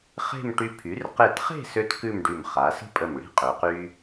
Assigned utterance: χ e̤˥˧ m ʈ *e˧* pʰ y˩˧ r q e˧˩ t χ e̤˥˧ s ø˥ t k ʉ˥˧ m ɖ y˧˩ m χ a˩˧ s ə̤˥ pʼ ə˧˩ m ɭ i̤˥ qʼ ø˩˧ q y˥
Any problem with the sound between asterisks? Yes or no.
yes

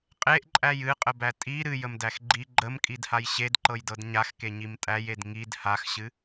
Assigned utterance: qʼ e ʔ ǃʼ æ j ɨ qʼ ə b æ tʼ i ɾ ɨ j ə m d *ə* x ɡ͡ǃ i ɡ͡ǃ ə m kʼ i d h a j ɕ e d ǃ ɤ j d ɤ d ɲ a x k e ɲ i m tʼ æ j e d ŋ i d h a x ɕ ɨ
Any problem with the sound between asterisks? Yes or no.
yes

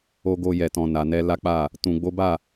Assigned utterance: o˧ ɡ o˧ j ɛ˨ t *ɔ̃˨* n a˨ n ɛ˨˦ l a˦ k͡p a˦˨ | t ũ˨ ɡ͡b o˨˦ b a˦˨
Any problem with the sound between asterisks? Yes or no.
no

